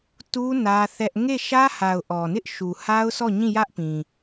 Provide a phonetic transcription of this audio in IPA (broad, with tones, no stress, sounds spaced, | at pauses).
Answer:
t u˦ n ä˦ θ ɛ˦ ʔ ŋ e˦˨ ʃ ä˦ h a˨ ʊ̯ ʔ ɔ˨ n ɪ˦ ʔ ʃ u˨ h a˦ ʊ̯ s ɔ˦˨ ɲ ĩ˦˨ j ä˦ ʔ p ĩ˨